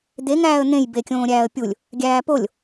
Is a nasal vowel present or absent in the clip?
present